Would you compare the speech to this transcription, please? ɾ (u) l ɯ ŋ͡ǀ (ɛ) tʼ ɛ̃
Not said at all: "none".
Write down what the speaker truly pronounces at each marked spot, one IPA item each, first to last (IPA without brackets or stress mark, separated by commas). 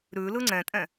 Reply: ʉ, ɛ̃